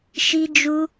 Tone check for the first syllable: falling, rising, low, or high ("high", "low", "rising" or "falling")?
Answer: high